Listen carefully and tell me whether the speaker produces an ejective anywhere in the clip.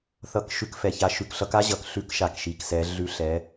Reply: no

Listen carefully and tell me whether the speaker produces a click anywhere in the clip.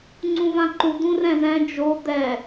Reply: yes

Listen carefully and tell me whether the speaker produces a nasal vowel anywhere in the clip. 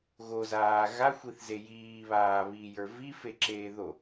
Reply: no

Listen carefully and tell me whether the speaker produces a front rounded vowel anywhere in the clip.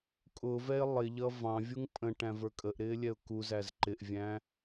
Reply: no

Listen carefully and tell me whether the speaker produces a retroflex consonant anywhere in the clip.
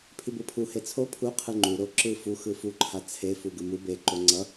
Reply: no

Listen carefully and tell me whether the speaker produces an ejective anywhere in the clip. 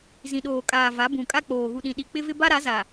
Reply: yes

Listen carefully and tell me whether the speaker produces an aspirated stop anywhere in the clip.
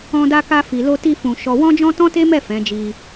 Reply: no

